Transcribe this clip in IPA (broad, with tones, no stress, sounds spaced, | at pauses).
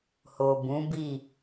h o˨ b ũ˨˦ b i˦˨